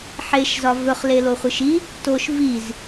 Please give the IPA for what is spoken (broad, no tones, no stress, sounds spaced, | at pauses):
ħ e ʃ z ɒ v ɵ χ l e l o χʷ ɯ ʃ i | t o ʃ v i z